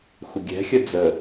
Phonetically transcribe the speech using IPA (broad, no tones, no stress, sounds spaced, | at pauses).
xʷ ɪ ɡʲ ɛ̤ xʲ ə d͡z ə